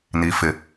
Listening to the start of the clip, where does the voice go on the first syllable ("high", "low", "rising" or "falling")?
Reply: low